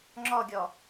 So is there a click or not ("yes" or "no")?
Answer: yes